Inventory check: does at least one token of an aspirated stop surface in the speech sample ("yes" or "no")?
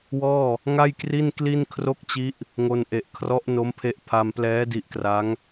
yes